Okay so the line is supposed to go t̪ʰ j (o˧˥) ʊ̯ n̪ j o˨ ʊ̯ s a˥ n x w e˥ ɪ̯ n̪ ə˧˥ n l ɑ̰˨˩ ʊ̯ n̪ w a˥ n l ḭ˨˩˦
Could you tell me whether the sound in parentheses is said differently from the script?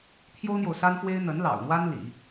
yes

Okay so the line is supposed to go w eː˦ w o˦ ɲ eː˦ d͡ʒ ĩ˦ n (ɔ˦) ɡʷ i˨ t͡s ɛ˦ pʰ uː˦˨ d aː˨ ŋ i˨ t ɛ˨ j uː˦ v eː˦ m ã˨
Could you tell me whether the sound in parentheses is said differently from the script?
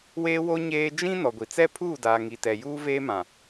yes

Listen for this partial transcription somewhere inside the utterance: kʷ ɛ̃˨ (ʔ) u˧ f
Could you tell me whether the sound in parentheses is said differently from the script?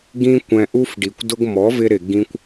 no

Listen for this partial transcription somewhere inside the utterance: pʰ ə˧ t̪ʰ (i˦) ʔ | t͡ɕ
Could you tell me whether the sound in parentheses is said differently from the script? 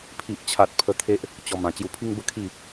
yes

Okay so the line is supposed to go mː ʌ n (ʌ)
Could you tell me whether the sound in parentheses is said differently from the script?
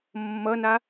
yes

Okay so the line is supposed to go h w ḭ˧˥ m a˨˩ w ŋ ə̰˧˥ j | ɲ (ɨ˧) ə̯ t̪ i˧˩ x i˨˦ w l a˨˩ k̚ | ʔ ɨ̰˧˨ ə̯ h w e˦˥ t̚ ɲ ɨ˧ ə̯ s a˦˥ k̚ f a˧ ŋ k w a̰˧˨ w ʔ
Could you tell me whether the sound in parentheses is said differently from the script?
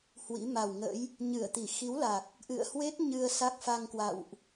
yes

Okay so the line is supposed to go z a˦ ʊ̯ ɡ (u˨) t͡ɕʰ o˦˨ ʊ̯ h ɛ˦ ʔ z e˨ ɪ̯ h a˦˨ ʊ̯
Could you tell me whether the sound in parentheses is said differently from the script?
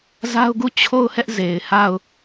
yes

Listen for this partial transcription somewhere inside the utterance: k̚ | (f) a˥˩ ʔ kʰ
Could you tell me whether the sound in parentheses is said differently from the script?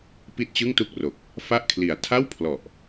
no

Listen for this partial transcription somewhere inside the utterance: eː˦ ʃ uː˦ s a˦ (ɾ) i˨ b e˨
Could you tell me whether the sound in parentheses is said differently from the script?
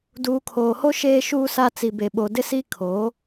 yes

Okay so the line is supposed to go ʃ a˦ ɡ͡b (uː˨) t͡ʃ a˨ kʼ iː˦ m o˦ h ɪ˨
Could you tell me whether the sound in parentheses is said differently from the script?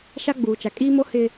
no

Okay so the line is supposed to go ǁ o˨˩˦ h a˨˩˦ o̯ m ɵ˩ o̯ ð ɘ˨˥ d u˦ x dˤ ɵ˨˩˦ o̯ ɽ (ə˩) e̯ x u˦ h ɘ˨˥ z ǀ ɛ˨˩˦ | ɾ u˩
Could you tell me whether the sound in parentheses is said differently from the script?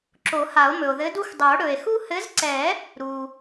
yes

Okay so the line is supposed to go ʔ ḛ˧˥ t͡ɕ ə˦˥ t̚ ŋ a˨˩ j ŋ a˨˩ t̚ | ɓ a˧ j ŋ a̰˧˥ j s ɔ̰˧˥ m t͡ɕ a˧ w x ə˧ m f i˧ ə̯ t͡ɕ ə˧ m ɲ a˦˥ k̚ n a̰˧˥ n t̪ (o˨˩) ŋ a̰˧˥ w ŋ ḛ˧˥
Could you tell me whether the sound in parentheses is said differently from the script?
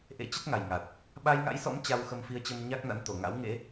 no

